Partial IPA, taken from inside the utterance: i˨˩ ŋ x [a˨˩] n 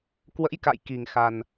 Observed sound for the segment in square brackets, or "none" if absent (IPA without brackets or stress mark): a˨˩